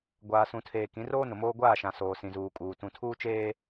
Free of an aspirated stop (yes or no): no